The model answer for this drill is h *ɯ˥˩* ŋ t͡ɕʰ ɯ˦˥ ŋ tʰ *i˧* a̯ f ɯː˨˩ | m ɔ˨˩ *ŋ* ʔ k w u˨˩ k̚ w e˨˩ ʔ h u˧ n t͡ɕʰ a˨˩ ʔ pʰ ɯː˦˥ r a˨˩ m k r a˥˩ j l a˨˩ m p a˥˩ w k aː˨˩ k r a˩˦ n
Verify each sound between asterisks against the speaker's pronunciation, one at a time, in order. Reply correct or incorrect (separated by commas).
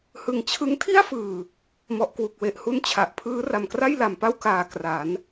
incorrect, incorrect, incorrect